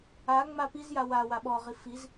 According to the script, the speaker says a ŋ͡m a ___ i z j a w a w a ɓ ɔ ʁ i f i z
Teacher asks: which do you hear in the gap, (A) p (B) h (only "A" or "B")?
A